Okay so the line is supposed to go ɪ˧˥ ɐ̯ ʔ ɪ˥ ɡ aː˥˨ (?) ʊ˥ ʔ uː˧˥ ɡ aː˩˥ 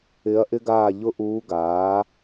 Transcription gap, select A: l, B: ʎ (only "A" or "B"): B